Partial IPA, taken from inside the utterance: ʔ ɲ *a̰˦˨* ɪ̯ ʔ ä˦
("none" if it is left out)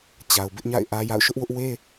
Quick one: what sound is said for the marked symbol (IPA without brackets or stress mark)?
a̰˦˨